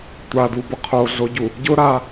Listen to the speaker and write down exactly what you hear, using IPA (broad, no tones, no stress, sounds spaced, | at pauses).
tʷ a d u b ʊ qʰ o ɮ o ɟ u | ɟ ʊ ɾ a